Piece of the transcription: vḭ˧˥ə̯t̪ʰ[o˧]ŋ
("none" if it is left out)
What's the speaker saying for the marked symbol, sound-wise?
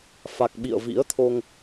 o˧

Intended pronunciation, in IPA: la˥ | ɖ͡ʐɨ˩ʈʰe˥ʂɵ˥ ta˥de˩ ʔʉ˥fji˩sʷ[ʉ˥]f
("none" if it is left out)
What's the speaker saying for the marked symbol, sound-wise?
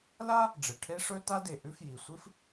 ɨ˥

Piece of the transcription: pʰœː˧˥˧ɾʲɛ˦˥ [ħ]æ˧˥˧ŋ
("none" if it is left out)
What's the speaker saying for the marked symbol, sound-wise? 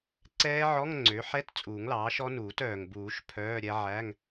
ʕ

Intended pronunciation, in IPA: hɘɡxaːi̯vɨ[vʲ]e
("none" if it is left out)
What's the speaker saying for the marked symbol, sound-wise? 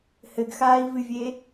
vʲ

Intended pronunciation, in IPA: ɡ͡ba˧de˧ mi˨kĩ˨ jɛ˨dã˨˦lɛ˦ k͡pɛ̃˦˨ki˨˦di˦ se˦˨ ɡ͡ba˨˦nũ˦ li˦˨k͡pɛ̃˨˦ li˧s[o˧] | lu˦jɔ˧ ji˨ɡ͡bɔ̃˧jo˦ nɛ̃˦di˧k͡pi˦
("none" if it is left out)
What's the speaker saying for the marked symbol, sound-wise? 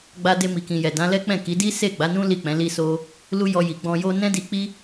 o˧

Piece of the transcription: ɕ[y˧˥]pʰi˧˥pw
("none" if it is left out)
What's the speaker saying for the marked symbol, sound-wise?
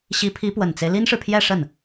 i˧˥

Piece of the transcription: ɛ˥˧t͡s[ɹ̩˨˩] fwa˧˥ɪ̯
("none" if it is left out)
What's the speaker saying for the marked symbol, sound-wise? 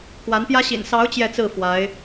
ɹ̩˥˩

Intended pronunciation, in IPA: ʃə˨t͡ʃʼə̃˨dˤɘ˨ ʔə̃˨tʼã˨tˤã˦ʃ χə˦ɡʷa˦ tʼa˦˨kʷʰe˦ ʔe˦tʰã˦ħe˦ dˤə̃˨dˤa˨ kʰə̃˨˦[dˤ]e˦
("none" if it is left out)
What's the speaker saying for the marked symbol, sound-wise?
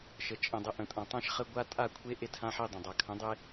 dˤ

